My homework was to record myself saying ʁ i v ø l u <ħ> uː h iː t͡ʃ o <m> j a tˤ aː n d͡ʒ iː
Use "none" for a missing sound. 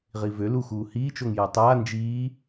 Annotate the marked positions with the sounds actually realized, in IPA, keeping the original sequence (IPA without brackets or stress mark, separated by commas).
x, ŋ